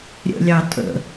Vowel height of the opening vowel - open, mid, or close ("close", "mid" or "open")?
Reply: mid